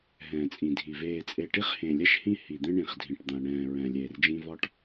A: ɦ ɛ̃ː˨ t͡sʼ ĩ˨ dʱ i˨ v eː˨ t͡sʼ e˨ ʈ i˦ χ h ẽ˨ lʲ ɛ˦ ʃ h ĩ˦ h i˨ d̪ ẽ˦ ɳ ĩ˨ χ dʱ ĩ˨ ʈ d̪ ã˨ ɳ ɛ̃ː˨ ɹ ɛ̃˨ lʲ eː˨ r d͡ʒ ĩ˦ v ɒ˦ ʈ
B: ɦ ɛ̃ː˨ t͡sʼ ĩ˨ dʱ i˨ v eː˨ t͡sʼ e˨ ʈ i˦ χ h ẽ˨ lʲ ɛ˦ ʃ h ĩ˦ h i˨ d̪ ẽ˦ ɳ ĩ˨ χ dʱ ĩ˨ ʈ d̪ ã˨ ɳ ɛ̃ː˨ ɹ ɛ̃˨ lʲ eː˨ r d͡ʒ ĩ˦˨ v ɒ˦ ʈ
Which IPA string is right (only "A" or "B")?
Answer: A